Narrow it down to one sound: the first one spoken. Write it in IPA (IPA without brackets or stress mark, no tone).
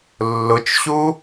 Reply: lː